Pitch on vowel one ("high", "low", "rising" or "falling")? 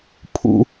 low